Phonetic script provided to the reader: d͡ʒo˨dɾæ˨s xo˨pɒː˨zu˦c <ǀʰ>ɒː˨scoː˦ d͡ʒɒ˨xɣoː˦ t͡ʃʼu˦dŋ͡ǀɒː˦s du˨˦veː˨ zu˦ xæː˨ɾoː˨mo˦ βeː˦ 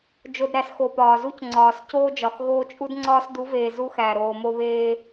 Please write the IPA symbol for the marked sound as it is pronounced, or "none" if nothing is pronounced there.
ŋ͡ǀ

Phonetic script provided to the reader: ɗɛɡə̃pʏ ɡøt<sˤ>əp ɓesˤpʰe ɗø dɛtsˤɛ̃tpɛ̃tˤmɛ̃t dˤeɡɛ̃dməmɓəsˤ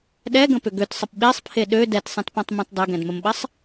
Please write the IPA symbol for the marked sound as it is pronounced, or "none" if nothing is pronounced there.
sˤ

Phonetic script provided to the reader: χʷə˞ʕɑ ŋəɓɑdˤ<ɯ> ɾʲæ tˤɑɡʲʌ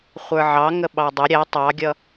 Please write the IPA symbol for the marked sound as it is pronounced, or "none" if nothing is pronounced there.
ʊ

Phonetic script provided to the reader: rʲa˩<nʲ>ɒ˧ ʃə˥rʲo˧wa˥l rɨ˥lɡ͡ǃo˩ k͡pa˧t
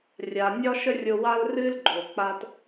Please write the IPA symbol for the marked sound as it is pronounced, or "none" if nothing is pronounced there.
nʲ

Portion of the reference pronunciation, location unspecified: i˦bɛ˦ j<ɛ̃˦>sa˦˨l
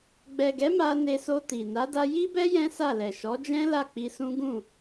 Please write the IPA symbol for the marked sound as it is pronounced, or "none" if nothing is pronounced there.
ɛ̃˦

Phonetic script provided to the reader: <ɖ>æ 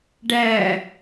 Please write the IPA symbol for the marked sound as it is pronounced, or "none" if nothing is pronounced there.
ɖ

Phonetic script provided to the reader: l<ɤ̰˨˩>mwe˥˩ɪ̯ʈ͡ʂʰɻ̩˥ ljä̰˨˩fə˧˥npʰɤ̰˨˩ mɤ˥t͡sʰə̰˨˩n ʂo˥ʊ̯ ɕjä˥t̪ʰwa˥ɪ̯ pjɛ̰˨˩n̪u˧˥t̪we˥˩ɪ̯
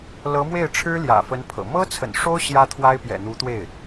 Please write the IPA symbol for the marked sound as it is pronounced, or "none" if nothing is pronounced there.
ɤ˧˥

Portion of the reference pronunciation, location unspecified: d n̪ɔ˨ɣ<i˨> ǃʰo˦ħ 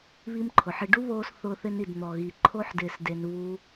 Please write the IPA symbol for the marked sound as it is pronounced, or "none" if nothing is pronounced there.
i˨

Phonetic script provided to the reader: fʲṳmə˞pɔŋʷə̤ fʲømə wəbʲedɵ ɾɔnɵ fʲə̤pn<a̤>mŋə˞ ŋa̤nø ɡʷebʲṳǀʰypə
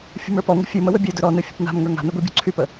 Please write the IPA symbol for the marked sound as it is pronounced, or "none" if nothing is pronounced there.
a̤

